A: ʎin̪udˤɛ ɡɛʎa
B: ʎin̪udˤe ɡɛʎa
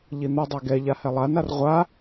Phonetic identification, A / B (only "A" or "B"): B